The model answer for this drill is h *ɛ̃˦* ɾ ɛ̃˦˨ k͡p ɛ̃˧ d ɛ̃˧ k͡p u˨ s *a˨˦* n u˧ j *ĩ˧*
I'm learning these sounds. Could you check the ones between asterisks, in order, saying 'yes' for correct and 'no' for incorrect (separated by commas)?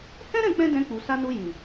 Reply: yes, no, no